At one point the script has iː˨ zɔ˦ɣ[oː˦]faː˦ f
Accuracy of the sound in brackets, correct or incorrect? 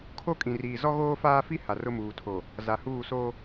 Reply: correct